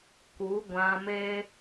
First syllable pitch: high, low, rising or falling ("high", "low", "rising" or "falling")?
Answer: rising